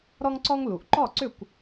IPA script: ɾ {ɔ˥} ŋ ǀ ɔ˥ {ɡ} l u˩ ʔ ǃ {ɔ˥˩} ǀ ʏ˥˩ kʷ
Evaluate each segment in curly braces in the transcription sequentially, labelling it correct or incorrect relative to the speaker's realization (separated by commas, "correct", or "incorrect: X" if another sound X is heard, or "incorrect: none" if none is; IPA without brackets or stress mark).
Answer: correct, incorrect: ŋ, correct